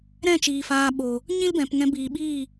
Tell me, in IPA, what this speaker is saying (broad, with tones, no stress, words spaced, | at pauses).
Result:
ɾɛ̃˦˨t͡ʃiː˨ faː˧ ɓo˨ | ɲĩ˦lbɛ̃˨pŋɛ̃˧ biː˨ɓiː˦˨